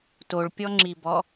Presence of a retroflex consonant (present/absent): present